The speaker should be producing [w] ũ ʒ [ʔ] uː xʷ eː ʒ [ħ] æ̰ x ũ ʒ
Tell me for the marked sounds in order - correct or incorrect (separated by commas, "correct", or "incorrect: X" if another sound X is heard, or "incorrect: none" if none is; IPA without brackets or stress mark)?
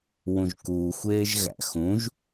correct, incorrect: k, incorrect: ɣ